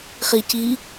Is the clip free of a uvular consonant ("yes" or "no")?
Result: no